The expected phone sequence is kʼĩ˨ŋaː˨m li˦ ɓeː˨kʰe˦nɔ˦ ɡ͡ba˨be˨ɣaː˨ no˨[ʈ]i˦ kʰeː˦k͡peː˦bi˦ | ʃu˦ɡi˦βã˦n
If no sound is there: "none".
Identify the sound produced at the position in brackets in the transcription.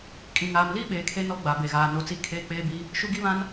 t͡s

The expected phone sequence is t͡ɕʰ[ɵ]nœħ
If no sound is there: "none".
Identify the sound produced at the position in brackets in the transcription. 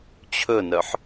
ɵ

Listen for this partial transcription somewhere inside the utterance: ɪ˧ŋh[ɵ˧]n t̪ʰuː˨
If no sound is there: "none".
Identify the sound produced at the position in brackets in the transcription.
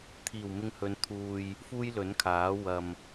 ɵ˨˧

